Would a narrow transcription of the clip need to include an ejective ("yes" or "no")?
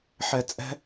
yes